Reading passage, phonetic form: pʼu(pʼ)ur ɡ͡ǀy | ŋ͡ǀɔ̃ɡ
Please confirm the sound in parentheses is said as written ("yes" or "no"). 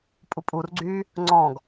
yes